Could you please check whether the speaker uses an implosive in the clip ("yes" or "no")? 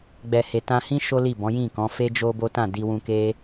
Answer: no